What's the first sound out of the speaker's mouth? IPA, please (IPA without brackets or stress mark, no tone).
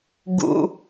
ɡ